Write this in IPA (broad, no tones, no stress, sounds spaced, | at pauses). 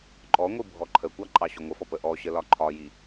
ǃʼ ɔ ŋʷ i bʱ ɔ ǃʰ ə kʷ ɑ ǃʼ ɑ ɕ ʊ ŋʷ ə f ɔ p ə ʔ ɔ ɕ ə l ɒ ǃʰ ɒ j i